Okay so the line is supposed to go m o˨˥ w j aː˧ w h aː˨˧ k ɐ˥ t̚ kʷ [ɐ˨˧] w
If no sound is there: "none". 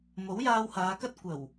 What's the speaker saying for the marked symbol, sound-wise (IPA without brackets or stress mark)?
ɐ˨˩